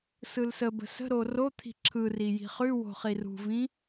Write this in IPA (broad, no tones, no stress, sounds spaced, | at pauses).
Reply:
s ɯ l s ə b ə̤ s ə̤ ɾ o r o t̪ʰ i̤ ǁʰ ɯ r i j i̤ χ ʉ w o̤ χ i r ṳ v ĩ